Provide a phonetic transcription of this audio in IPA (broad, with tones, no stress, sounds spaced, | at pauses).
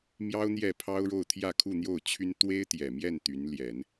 m j ɑ˥ ʊ̯ n̪ j ɛ˥˩ pʰ ɑ˥ ʊ̯ ɻ o˥˧ ʊ̯ t̪ʰ j ä˥˧ kʰ u˥˧ n̪ j o˥˩ ʊ̯ t͡ɕʰ y˥ n t̪ w e˥ ɪ̯ t̪ j ɛ˨˩ m j ɛ˥˩ n t̪ y˧˥ n l j ɛ˨˩˦ n